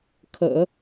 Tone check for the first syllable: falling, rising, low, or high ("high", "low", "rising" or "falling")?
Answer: low